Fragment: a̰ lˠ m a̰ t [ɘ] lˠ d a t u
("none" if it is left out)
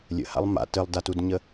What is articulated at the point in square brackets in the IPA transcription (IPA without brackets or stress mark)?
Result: ɘ